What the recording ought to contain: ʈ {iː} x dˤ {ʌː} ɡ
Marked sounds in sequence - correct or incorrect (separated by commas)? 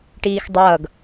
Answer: correct, correct